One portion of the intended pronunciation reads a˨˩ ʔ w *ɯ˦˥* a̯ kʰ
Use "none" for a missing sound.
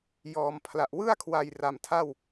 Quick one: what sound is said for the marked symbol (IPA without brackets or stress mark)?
ɯ˥˩